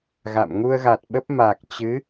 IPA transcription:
ɣ a̰˧˨ m ŋ u˧ ə̯ ɣ a˨˩ t̚ ɓ ə˦˥ p̚ m a˨˩ k̚ t͡ɕ ɨ˨˦

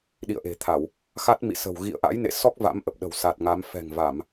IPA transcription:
ɗ ḭ˧˨ ə̯ ʔ e̤˨˩ t̪ʰ a˧˩˨ w | x a˦˥ t̚ m ḭ˧˨ s ə̤˨˩ w ɣ ḭ˧˨ ə̯ ʔ a̰˧˥ j n ḛ˧˨ s ɔ˦˥ k̚ v a̰˧˥ m ʔ ə˨˩ p̚ ɗ ə̤˨˩ w s a˨˩ t̚ ŋ a˨˦ m f ɛ̤˨˩ ŋ v a˧˩˨ m

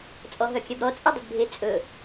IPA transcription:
t͡sʼ ɔ ɦ œ kʲ ɛ b ɾ ɔ t͡sʼ ɛ dˤ o d bʱ e t͡sʼ ɵ

